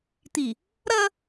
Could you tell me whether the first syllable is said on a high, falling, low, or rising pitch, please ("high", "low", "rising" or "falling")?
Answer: low